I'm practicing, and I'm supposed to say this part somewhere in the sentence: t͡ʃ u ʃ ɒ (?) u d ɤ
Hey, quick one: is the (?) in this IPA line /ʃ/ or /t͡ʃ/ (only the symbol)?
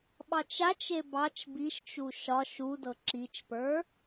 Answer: ʃ